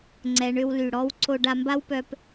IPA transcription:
ŋ͡ǀ ɛ˩˧ ɳ ʏ˧ w l y˩ ɽ ɔ˧˥ w ǀ o˧ ɖ a˧ m b a˥ w p œ˧ p

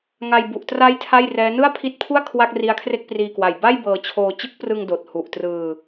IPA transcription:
ŋ a˧ j b u˨˩ ʔ t r a˦˥ j tʰ a˥˩ j r ɛː˦˥ n ɯ˥˩ a̯ pʰ i˦˥ t̚ pʰ u˥˩ a̯ kʰ w a˥˩ k̚ r i˦˥ a̯ kʰ r e˥˩ k̚ p r iː˧ k w a˨˩ j b a˥˩ j b ɤː˧ t͡ɕʰ oː˧ t͡ɕ ɯ˦˥ k̚ p r ɯ˧ ŋ d oː˨˩ t̚ h u˨˩ ʔ t r ɯː˧

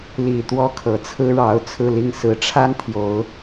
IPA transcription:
l i˨˩ t̪ w ɔ˥ kʰ ɤ˨˩ t͡sʰ ɹ̩˥ ɻ ɑ˧˥ ʊ̯ t͡sʰ ɹ̩˥˧ l i˥˩ ŋ s ɹ̩˧˥ ʈ͡ʂʰ a˥ n t̪ʰ j o˧˥ ʊ̯

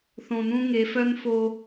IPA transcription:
θ õ˨ n ũ˦ ŋ e˨˦ f œ˦ n f oː˦

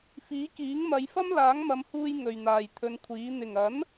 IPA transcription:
f iː˨˥ k iː˨˥ ŋ m ɐ˨˧ j f ɐ˥ m l aː˨˥ ŋ m ɐ˨˧ m h uː˧ j ŋ ɵ˨ ɥ n̪ aː˨ j t̪ʰ ɵ˨˧ n kʷʰ iː˨˥ n̪ ɪ˨˩ ŋ ɐ˨˥ n

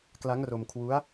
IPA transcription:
k l a˦˥ ŋ r o˧ m kʰ w u˦˥ a̯

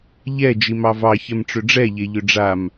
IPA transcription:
ʎ ɛ d͡ʒ i m ɑ v ɑ ç ɛ m ʈ͡ʂ ʏ ɖ͡ʐ ɛ ʎ e ʎ ʏ ɖ͡ʐ a m

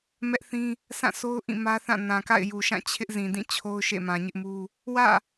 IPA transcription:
m ɛ˦ ʔ θ ĩ˦ | s ã˦˨ s o˦ ʊ̯ ʔ ĩ˦˨ m ä˦ θ ã˦˨ n ã˨ k a̰˦˨ ɪ̯ j u˨ ʃ ã˦˨ t͡ɕʰ ɪ˦ ʔ z ĩ˨ d ĩ˦˨ t͡ɕʰ o˦ ʊ̯ ʃ ḛ˦˨ m ã˨ ɲ ɪ˦ ʔ m u˦ | w ä̰˦˨

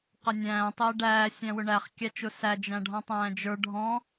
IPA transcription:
q ʌ nʲ æ̃ː tˤ ɪː ɖ æː sʲ æ̃ w ʊ ɳ æ χ kʲ æ t͡ʃ ʊ s æ d͡ʒ æ̃ ɖʱ ɔ̃ tˤ æ̃ː d͡ʒ ə˞ ɖʱ ɔ̃

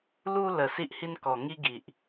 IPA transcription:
l u˧ l ə˨˩ s i˦ ʔ h i˦ n k ɔ˨˩ ŋ i˦ ɡ i˨ ʔ

